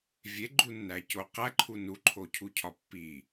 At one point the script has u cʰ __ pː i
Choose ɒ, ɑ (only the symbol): ɒ